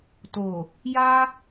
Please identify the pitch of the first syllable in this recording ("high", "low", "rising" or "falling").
low